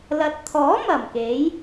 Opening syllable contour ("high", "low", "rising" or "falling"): low